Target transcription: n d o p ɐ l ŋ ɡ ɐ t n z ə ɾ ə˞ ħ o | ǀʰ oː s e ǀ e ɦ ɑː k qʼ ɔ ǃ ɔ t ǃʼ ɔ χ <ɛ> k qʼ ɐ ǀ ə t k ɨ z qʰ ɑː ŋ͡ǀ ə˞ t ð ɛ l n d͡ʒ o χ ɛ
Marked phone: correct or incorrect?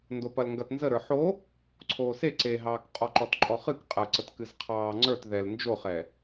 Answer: incorrect